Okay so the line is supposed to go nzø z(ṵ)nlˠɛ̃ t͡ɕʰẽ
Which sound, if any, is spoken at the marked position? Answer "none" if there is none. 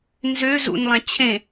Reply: ṵ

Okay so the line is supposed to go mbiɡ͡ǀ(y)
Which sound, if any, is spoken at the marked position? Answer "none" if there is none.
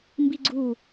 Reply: u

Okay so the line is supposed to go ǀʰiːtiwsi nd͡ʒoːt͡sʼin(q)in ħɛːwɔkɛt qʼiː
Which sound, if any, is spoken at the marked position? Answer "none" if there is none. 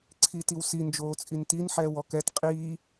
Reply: t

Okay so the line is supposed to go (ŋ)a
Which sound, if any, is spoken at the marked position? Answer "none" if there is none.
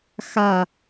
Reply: x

